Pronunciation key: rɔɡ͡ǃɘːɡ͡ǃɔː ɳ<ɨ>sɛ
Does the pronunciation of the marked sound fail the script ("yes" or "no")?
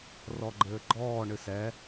no